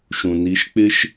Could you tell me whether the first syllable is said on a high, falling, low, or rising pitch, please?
low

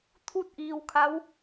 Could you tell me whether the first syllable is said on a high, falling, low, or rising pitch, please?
falling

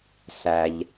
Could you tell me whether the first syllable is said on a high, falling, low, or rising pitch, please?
low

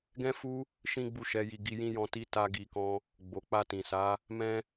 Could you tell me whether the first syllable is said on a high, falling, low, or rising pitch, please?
high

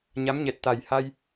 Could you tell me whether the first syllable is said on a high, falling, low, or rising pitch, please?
rising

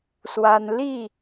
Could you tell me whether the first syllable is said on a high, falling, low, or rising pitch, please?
high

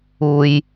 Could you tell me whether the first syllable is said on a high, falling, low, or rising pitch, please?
low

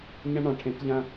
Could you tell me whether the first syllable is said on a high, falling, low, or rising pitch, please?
high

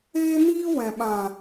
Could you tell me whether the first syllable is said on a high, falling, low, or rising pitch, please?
high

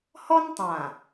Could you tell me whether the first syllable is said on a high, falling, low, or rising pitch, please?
high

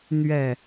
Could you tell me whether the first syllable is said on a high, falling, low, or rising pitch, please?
falling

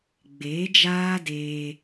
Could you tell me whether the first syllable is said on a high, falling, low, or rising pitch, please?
rising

